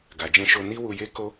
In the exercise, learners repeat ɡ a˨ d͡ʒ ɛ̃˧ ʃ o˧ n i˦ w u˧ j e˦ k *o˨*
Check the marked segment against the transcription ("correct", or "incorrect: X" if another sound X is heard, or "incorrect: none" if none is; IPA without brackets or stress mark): incorrect: o˦